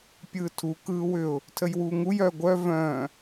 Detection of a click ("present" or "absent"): absent